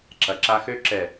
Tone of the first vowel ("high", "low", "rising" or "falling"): low